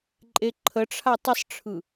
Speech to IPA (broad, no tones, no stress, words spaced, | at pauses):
ǃʼeǃʰəʈ͡ʂʰa tˤəsˤʈ͡ʂʰɯ